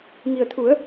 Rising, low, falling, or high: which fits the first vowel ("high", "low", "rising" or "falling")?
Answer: low